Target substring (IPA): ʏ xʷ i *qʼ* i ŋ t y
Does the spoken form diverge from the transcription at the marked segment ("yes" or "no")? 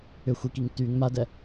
yes